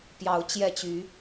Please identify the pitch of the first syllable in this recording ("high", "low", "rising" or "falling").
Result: rising